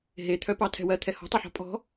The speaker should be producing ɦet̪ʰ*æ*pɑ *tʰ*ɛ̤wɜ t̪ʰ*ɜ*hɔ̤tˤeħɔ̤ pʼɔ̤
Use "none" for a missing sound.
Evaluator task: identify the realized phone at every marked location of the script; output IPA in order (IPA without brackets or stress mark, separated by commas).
œ, tʰ, ɛ